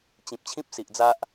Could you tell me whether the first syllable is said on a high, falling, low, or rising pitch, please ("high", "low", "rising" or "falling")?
low